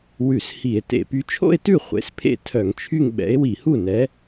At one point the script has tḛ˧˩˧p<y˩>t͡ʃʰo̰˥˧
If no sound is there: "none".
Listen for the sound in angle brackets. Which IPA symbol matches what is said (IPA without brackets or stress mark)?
y˨˥